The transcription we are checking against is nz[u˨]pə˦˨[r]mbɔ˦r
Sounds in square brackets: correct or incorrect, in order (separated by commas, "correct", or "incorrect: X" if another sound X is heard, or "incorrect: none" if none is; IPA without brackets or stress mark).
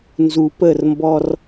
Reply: correct, correct